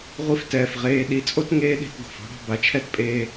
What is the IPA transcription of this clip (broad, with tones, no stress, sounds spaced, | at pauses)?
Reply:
ʁʷ i˥ f t ɛː˩ f ʁ eː˧˥ ɗ i˩˧ t͡sʼ o˥ t ŋ eː˧˥ ɗ e̤˩˧ t ɡ o̤˩ f ɔ̤˧˥ ɽ ɑ̤˧ b a˩˧ t͡ʃʰ ɛ˥ t pʼ eː˧